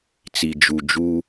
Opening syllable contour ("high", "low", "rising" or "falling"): low